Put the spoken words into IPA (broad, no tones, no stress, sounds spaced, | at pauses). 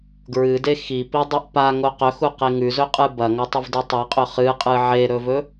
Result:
ɡ ɹ ɨ d e x i p i dˤ o ʔ p a ŋ o q ɵ x u q e ŋ ʉ z ɵ qʼ ɨ b ɐ ŋ ɵ tˤ ɨ v d ɨ tˤ e qʼ ɵ χ ɨ qʼ ɨ ʕ e ɾ ɵ v ɵ